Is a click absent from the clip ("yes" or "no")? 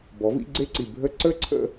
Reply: no